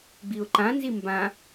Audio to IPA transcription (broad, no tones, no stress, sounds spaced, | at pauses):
ɡ͡b i ʊ̯ ǃ ã n z i m b ã